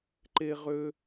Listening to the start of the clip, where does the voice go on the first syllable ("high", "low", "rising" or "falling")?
high